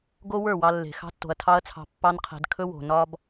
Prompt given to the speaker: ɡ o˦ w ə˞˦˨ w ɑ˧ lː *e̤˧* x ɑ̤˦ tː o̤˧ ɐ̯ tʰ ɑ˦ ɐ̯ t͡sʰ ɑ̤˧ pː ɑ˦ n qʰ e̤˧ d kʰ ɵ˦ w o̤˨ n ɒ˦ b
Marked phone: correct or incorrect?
incorrect